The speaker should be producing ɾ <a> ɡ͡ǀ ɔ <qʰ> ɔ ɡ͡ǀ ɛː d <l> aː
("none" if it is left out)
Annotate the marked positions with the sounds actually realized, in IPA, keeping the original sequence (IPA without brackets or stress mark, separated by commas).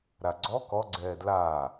a, k, l